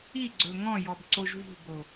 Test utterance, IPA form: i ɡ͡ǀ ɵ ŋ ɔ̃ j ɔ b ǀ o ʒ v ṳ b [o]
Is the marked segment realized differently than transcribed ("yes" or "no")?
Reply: no